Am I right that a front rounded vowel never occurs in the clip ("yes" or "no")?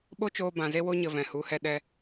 yes